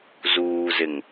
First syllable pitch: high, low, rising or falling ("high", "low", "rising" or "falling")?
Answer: low